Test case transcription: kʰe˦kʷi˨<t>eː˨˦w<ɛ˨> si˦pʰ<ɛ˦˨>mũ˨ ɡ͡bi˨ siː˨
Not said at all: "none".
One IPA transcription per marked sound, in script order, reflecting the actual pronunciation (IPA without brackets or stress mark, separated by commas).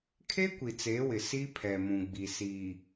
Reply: t͡s, ɪ˨, ɛ˨